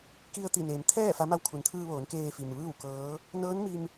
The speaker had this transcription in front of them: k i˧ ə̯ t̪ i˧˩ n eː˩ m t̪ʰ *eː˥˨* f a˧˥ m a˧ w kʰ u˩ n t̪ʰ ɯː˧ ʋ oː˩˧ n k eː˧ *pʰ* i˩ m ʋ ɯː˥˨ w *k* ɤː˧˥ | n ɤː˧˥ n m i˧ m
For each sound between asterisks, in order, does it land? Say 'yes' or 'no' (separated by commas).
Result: no, no, yes